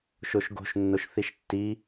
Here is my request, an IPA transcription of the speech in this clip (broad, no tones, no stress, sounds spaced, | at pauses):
ʃ o ʃ ɡ o̤ ʃ nː o ʃ θ i ʃ tː i